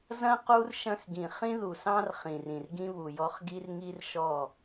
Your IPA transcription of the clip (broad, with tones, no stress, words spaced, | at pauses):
zɐ̃˦ qu˦r ʃɐ̃˦xɡĩ˨ χĩ˦ðu˨sɑ̃˦r χĩ˨rĩ˨r ɡĩ˦βu˨jɔ˦χ ɡi˦rŋi˦rʃɔ˦˨